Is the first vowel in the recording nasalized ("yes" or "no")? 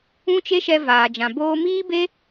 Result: yes